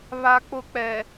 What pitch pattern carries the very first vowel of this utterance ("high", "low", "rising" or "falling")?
high